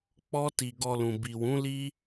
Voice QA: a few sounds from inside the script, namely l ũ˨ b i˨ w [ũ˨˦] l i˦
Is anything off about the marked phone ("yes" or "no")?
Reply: no